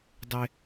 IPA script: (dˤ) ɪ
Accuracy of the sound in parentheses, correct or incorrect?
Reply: correct